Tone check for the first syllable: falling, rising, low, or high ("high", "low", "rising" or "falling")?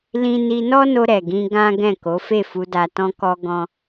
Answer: high